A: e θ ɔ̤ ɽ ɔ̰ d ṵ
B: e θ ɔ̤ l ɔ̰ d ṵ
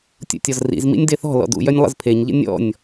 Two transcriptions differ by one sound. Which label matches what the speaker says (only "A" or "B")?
B